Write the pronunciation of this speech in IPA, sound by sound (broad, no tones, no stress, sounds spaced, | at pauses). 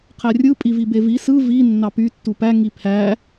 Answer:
qʰ æ rʲ ɯ pʼ i v i b e v i s ɯ v i nː ɑ p y tː u p æ ŋ i pʰ æ